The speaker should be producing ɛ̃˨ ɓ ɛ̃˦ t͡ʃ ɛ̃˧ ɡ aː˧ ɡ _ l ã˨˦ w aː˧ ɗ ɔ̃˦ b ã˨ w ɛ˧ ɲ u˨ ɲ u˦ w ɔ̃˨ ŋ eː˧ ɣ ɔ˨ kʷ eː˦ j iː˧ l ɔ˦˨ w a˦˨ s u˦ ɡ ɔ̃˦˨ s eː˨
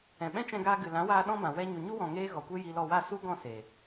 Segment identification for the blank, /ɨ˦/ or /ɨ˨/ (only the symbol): ɨ˨